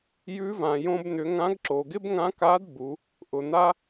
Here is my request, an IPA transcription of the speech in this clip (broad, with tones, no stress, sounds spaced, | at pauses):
j ʉ˧˥ v ã˩ j õ˧ b n̪ ʏ˩˧ ŋ ã˧˥ ɡ ǁ o˩ ɡ ɪ˥ b ŋ ã˧˥ k a˧˥ d b u˩˧ | ʔ ʊ˩ n̪ a˥